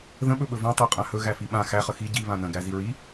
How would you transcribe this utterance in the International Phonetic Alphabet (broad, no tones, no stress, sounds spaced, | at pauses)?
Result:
ð ə̃ ɓ ɵ ɓ ɵ v ã tˤ æ qʼ ã h ɵ ɣ æ f i ɓ ã x æ χ ə x i ɟ i β ã n ə̃ ɡ æ z i ɹ i